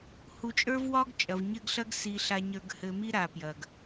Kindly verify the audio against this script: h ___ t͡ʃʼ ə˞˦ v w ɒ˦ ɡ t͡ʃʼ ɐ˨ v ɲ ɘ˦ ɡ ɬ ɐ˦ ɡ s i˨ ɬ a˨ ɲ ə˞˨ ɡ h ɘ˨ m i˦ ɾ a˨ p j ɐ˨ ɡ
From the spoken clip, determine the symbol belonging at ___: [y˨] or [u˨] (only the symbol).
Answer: u˨